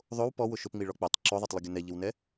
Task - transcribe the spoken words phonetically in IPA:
ðˤow pɔwʊ ʃʊpŋ͡miɭɔ k͡pøtˤ ǁoðˤɛtˤlˠəɡʲʊ nɛʎɪwnɛ

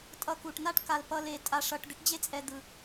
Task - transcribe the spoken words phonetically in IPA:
tʼʌ˨ku˩ʈna˦ʈ ka˨l pʌ˦le˨ tʼa˨ʂʌ˨ʈ d̪e˥ʈd͡ʑe˥t͡sʼɛ˨ d̪ɯ˩

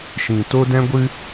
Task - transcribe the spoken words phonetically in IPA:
ʃĩ˨to˦ dɛ̃˦ɡʷɨ˦

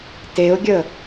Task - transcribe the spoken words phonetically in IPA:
teʊ̯ɡʲə

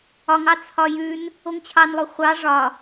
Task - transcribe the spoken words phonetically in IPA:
ɒŋɑ t͡sʰɒjʉn | oŋt͡ɕʰɑnlˠo χʷɑ ʐɒ

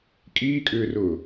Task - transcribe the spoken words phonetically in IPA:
kʼiːkʼʏːrʊː

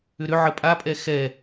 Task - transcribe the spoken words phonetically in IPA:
ʏɾʏ ʕəpʼapʼɛ xɛ

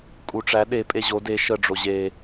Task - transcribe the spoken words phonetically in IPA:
kʼuʈ͡ʂæ ɗe pʼeʑo de ʃə ɖ͡ʐoʑe

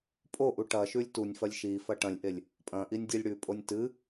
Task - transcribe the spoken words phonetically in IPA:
pʼoʔu ʈɐ ʃʉlʲtunʲfɐlʲ ʃifɐ ʈɐ̃lʲʔelʲ | pʼɐ̃ ʔinʲdʲelʲɽʉpʼonʲ tɨ

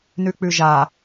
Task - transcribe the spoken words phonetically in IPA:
nʉk͡pʉʒa

